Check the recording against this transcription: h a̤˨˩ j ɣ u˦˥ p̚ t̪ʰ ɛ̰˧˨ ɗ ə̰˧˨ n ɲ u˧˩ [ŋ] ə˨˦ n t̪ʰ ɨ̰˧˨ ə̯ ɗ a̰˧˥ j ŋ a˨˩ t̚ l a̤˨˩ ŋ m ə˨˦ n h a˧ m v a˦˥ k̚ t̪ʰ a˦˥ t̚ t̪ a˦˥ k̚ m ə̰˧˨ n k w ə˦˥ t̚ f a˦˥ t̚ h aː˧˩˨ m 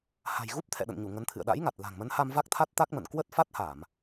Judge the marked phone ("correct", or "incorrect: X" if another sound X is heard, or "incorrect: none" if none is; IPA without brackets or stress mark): correct